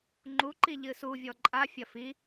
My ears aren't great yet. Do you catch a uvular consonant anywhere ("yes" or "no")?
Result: no